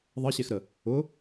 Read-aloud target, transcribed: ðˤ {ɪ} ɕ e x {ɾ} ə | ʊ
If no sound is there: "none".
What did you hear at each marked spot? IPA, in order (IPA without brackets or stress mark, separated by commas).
ə, ɾ